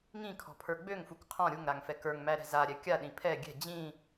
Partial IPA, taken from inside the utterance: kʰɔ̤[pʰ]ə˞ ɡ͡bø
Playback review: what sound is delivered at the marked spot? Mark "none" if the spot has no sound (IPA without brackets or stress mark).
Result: pʰ